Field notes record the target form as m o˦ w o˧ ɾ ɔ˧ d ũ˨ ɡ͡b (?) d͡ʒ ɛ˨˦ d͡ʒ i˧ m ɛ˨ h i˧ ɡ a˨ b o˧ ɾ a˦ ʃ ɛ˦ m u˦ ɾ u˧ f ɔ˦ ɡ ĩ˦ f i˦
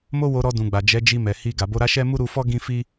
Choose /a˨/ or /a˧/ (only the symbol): a˨